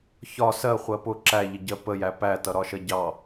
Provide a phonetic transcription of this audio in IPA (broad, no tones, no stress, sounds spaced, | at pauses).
ç ɒ s ɜ χʷ ɜ p ʊ ǁ æ ʎ ə ɟ ɜ p ə j æ p æ t ʌ ɾ ɒ ʃ ɜ ɟ ɑ